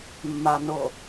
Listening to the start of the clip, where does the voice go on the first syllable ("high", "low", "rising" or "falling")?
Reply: low